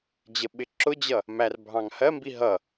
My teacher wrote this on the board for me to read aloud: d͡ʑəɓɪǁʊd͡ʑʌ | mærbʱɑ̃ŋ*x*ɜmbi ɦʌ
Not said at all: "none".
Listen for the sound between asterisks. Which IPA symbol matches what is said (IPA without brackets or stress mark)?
h